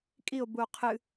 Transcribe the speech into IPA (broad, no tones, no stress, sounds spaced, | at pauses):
kʼ i o̯ b u o̯ qʰ ɨ